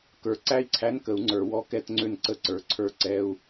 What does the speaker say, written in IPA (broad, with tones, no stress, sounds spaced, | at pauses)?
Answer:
k ə˞˨˩˦ ǀ æ˥˧ i̯ ǀʰ æ˧˥˧ n k ə˨˩˦ u̯ ŋ͡ǀ ə˞˨˩˦ w ɔ˧˥˧ k ɛ˥˧ t ŋ͡ǀ ø˥˧ n ǀ ə˥˧ ǀ ə˞˨˩˦ ǀʰ ə˞˥˧ ǀ ɛ˧˥˧ u̯